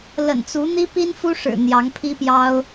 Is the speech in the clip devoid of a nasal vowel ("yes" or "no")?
yes